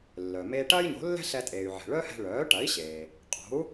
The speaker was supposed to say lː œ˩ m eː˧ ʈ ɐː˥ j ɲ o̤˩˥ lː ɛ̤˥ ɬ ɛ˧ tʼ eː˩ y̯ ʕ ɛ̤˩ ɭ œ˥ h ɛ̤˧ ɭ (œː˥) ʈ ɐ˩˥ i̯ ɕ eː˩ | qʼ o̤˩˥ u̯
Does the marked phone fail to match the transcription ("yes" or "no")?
yes